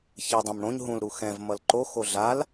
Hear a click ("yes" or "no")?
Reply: yes